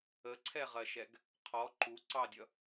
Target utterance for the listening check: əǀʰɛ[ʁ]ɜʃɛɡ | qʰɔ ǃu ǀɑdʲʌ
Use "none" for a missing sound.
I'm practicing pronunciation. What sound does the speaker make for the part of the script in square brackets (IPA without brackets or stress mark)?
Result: ʁ